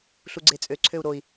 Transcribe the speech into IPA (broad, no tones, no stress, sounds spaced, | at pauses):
ɬ u ɡ͡ǀ e t͡sʼ ø ǀʰ ø u̯ ɾ o i̯